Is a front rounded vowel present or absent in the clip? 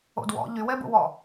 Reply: present